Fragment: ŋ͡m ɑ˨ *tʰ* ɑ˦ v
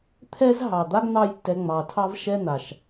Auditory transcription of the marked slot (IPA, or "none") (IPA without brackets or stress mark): tʰ